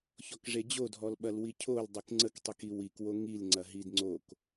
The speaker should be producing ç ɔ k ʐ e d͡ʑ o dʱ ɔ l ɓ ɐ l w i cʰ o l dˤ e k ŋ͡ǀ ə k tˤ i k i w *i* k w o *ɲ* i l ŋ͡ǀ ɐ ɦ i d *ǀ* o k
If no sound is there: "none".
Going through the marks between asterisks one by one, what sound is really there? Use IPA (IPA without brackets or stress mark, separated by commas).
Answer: i, ŋ, ŋ͡ǀ